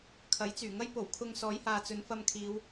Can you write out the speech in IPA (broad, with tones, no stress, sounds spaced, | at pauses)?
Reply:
kʰ ɐ˨˥ j t͡s yː˨˩ ŋ ɐ˥ j p o˨˩ w kʰ ʊ˧ ŋ s ɔː˨˥ j h aː˨ t͡s ɵ˨˧ n f ɐ˧ m kʰ iː˨˧ w